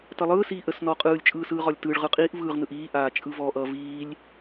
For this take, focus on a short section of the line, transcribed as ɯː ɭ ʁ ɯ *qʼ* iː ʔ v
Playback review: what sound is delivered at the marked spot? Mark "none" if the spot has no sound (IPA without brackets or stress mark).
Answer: qʼ